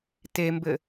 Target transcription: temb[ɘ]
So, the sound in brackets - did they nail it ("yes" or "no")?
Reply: yes